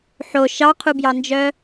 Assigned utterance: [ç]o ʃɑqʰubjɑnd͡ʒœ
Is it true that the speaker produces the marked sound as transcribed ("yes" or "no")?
no